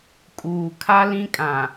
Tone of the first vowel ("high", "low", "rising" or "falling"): low